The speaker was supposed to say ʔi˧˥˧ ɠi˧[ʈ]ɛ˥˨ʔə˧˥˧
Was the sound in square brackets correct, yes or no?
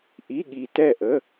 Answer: no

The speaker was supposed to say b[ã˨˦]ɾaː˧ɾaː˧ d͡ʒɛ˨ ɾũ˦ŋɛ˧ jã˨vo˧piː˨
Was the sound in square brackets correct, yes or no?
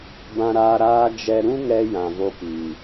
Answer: no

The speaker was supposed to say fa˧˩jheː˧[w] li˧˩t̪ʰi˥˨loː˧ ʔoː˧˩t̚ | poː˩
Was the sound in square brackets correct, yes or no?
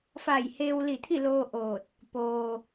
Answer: yes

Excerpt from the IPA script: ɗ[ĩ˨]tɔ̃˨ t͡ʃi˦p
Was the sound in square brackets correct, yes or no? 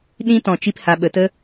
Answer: no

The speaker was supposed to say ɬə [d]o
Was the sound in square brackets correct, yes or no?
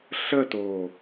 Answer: no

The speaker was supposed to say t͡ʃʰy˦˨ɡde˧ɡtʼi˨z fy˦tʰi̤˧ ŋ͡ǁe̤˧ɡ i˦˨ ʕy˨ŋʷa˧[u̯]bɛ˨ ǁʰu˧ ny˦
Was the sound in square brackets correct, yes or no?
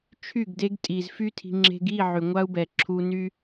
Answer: yes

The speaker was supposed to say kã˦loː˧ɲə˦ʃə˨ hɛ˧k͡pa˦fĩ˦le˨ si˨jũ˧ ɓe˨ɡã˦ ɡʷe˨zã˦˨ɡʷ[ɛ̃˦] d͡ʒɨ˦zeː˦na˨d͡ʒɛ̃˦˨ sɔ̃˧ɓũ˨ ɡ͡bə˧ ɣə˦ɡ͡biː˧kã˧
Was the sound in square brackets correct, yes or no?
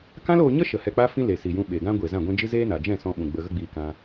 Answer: yes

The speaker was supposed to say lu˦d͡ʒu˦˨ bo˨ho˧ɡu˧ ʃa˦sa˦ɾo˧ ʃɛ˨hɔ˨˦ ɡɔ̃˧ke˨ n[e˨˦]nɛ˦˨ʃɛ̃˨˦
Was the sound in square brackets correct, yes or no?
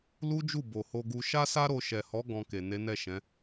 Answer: yes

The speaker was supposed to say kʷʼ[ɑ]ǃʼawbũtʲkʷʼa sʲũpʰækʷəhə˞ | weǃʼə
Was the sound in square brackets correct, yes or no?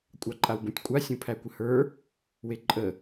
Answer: yes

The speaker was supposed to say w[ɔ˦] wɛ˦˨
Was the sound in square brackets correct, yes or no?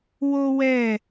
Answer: no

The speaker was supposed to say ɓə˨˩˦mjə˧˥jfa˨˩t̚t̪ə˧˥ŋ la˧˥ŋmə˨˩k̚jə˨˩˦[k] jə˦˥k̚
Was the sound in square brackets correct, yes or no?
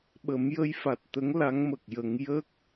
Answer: no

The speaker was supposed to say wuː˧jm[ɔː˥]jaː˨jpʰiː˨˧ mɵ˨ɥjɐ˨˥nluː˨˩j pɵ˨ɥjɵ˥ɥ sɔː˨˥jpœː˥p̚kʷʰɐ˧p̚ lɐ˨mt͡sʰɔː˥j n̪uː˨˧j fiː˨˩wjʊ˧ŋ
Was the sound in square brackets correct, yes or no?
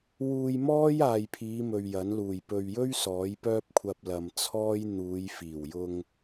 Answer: yes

